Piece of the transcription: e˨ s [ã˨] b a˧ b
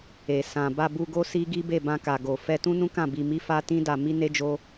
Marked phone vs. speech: correct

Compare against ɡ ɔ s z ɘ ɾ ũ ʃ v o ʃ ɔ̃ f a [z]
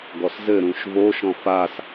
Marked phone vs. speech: incorrect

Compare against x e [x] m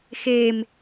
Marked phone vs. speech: incorrect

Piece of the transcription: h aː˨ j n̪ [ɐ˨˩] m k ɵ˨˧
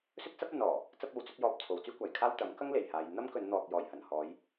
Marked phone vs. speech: incorrect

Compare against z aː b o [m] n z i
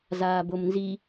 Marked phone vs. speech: correct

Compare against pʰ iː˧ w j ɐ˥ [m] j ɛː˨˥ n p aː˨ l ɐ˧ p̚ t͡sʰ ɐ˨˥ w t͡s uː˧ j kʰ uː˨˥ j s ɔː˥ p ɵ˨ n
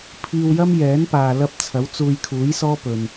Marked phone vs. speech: correct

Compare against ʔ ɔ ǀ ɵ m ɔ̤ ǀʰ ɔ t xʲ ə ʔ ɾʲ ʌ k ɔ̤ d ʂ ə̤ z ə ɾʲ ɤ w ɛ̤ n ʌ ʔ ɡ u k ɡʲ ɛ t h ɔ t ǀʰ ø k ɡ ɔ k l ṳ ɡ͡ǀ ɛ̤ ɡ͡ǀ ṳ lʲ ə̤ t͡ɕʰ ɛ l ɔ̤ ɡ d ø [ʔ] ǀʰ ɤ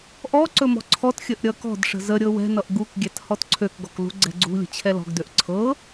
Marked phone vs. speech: correct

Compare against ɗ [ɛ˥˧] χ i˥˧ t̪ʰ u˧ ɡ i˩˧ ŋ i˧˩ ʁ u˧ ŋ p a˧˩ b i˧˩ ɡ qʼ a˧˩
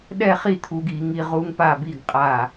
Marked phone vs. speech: correct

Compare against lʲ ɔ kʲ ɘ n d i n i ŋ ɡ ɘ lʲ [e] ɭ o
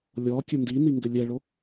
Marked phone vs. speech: incorrect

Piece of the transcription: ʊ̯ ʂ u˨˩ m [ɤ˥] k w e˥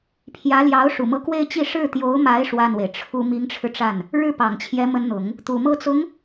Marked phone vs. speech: incorrect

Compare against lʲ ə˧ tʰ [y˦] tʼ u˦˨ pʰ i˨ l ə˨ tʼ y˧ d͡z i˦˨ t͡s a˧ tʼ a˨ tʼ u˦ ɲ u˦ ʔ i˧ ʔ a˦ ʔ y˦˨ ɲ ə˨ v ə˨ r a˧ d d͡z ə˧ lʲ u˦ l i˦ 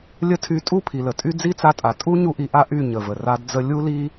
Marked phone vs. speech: incorrect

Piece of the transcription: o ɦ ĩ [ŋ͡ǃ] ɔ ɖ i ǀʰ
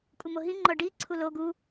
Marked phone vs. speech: correct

